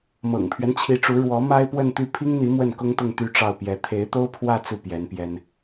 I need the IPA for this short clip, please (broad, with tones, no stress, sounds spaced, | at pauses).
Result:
m ɤ̰˨˩ ŋ pʰ ɥ ɛ˦ n t͡ɕʰ i˧˥ ʈ͡ʂ u˧˥ ɻ w ɔ˧˥ m a˥ ɪ̯ p w ə˥˧ n t̪ y˥˩ pʰ i˥ ŋ n̪ i˧˥ m w ə˥˩ n k ʊ˥ ŋ t̪ ʊ˥˧ ŋ t̪ y˥˧ ʈ͡ʂ ɑ˥˩ ʊ̯ p j ɛ˧˥ t̪ʰ e˧˥ ɪ̯ t̪ o˥ ʊ̯ pʰ w ä˥˧ t͡s u˥˩ p j ɛ˧˥ n p j ɛ˥ n